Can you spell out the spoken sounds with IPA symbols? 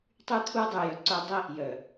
tˤ y˦ t̪ʰ u˦ dˤ y˨ j œ˨ ǀ œ˦ dˤ i˦ | j œ˨

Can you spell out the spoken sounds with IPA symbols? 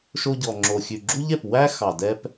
ʃ o˧ ɟ ɔ˨ ŋ͡ǁ o˨ xʲ ʉ˨ ɡ͡ǁ u˦ ʎ ɛ˨ p w æ˦ x ɑ˨ d ɛ˦ p

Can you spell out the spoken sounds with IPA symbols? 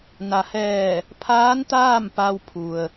n a˩ h ɛː˧˩ | pʰ aː˧˥ n t̪ aː˥˨ m p a˧ w pʰ u˩ ə̯

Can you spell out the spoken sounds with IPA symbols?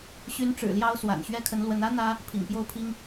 ɕ y˧˥ n ʈ͡ʂ ɻ̩˨˩ l j ɑ˥ ʊ̯ s w a̰˨˩ n ɕ ɥ ɛ˥ kʰ ə˧˥ n l w ə˧˥ n ä˥ n̪ ä˥ | pʰ ḭ˨˩ ŋ p j o˥˩ ʊ̯ pʰ i˥ ŋ

